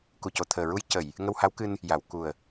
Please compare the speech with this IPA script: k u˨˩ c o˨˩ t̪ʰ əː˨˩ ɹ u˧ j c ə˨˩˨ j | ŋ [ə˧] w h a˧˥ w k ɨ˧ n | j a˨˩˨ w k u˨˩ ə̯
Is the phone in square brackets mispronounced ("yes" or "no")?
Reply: no